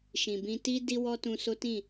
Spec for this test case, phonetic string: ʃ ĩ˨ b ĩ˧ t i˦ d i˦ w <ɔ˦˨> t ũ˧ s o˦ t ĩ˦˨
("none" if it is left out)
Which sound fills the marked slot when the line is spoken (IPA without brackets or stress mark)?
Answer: ɔ˦